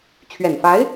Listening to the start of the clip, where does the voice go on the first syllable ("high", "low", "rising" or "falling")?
low